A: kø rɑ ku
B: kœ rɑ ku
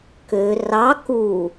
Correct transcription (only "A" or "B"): A